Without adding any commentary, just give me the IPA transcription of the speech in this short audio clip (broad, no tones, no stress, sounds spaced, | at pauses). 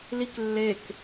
l i k lː e k